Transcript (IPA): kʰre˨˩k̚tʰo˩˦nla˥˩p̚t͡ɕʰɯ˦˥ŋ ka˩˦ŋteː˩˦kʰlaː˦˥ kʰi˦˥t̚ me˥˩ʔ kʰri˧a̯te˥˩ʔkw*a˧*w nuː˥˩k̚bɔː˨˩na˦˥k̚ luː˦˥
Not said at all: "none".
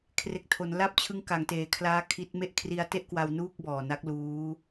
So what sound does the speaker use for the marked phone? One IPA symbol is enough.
a˧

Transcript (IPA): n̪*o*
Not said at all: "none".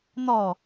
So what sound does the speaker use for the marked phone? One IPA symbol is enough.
ɔ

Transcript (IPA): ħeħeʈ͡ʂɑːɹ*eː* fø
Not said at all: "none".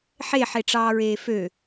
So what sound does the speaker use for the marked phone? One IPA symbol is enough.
eː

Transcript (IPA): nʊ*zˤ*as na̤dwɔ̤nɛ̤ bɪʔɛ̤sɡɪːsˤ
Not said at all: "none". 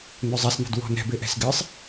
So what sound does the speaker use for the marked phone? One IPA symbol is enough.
zˤ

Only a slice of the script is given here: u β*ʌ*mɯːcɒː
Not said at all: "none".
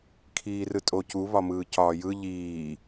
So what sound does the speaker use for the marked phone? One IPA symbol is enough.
ɒ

